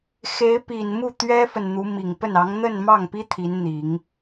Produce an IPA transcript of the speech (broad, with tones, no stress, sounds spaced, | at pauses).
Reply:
x e˧˥ ɪ̯ p i˨˩ n m u˥˩ t̪ ɥ ɛ˥ f ə˨ n n̪ u˧˥ m i˨˩ ŋ p ə˥˩ n ɑ˧˥ ŋ n̪ ə˥˧ n m ɑ˥˩ ŋ p i˥ t̪ʰ i˧˥ n n̪ i˨˩˦ ŋ